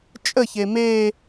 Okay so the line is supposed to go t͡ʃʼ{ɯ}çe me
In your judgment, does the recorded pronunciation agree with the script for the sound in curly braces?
no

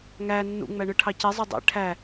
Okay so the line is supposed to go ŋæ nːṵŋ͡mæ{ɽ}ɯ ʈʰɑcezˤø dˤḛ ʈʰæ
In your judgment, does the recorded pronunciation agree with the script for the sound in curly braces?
no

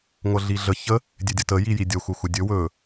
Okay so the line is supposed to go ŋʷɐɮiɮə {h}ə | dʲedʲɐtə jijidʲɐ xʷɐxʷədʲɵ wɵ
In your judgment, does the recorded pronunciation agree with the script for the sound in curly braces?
no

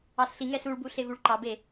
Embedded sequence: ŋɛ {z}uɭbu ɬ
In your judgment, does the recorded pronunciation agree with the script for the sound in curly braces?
no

